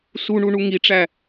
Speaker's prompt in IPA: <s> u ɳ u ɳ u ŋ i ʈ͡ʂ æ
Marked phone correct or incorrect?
correct